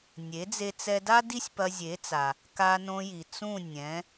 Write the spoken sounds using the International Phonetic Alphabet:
nʲ e˩˥ d͡z e˧ t͡s ɛ˧ d a˥ d i˥ sʲ p ɐ˧ zʲ e˩˥ t͡s a˩ | k a˧ n õ˧ j i˩ t͡s ũ˥˩ nʲ ɛ̃˩˥

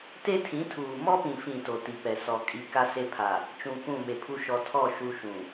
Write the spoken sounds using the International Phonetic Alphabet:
t e˦ tʰ ĩ˨˦ tʰ uː˨ m ɔ˦ p ĩ˨ f ĩ˨ t o˨ t i˨ p ɛ˨ s ɔ˨ kʼ i˨ k a˦ s e˦ pʰ a˨ | t͡ʃ ũ˨ k ũ˦˨ m e˨ pʰ u˦ ʃ ɔ˨ tʰ ɔ˦˨ ʃ u˦ ʃ ũ˨

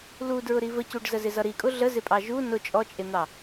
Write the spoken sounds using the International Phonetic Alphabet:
l u d ɹ ʊ ɾ i v ə c u ɖ z ə z ɪ z ʌ ɾ i kʼ ʊ ɮ ə z ɪ pʼ ɑ ʒ u n ʊ t͡ʃʼ ɔ t͡ʃʼ ɪ n̪ ɑ

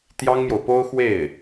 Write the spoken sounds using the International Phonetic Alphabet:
t̪ j ɑ˥ ŋ m j o˨ ʊ̯ p o˥ ʊ̯ x w e˥˩ ɪ̯

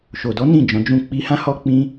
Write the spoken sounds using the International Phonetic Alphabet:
ʃ o˨ d ɔ˨˦ n ĩ˦˨ d͡ʒ ɔ̃˨˦ d͡ʒ ũ˦˨ k͡p i˧ h ã˦ h ɔ˦ k͡p ĩ˦

